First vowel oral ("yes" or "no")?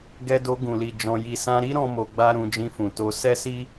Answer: yes